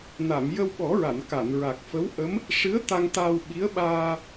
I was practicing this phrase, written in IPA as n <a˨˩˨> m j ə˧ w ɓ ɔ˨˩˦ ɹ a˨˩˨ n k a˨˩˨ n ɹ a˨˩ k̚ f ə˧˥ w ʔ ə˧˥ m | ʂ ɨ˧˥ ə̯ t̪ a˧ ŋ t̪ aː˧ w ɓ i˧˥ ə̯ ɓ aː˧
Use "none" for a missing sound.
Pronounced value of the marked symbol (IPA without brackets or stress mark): a˨˩˨